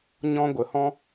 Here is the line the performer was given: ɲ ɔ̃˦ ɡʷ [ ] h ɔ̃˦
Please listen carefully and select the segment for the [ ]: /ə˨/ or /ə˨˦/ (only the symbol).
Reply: ə˨